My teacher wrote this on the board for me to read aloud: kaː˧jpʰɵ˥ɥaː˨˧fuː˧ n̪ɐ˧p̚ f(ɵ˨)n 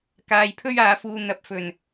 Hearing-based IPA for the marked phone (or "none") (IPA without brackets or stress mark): ɵ˨˩